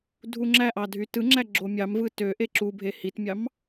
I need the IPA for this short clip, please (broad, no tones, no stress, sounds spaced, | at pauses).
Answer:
dʱ u ŋ͡ǁ æ ʔ ɑ dʱ y t ɯ ŋ͡ǁ æ ɡ͡ǁ o mʲ ɑ m v ɯ t ø ʔ e ǁ u bʱ e h i t mʲ ɑ m